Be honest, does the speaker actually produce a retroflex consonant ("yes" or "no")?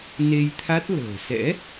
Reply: no